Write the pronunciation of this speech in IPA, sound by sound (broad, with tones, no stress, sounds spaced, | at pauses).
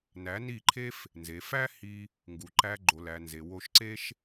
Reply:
n æ˨˦ n i˦˨ ǃʰ e˦ f | n z e˨ f æ˦ h i˧ | ŋ ɡ u˨ ǃ æ˧ ɡ͡ǃ o˨ l æ˨ n z e˨ w o˧ ʃ ǀ e˦ ʃ